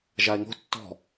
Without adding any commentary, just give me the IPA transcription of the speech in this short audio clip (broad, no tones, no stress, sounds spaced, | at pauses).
ʒ a e̯ ŋ o̤ tː ɔ̤